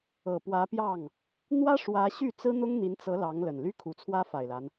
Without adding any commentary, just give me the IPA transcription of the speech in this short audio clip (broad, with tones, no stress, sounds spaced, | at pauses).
ɤ˨˩ p w ä˧˥ p j ɑ˥˩ ŋ | n̪ w ä˥ ʂ w ä˧˥ ɕ y˥˩ t͡s ɹ̩˥ n̪ ʊ˥ ŋ n̪ i˧˥ n t͡s ɤ˧˥ l ɑ˧˥ ŋ l ə˨˩ n l y˥ kʰ u˨˩ t͡sʰ w ä˥ f a˨˩ ɪ̯ l a˦ n